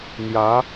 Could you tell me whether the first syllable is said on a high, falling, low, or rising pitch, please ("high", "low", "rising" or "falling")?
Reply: rising